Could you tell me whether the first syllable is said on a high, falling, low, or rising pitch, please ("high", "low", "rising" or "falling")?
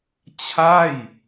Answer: falling